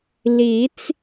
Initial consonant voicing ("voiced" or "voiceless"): voiced